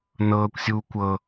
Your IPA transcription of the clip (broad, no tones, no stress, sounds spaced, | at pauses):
n ɤː kʷ sʲ uː kʷ ɤ